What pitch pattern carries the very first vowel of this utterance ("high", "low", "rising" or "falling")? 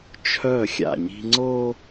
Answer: falling